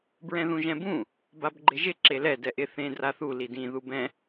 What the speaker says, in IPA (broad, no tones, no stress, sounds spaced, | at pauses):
b ɹ ɛ̃ ð ũ ʒ ɛ̃ b ũ | b a b ɡ͡ǃ ɪ ʒ ɪ ǁ e l ɛ d ɛ ʔ ɪ θ ẽ d r a θ u l i d ĩ ð u b ɛ̃